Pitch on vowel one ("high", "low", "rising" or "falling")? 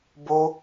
high